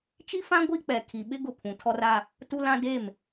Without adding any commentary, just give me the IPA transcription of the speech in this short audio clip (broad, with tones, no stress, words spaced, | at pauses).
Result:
t͡ʃi˦fã˦ ɡʷi˦k͡pɛ˨ kʰi˨ɓɪ˦ ɡʊ˦˨pʰũ˨tʰɔ˦ra˦ | tu˦lã˦ de˦˨m